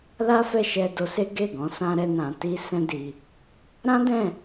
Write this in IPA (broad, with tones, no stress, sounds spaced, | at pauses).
l a˦ f ɛ˦˨ ʃ ɛ˧ d o˧ s e˦ ɡ e˦˨ ɡ ɔ̃˨˦ s ã˦ ɾ ɛ˦ n ã˧ t i˦ s ɛ̃˦ d i˧ | ɾ ã˦ d ɛ̃˦˨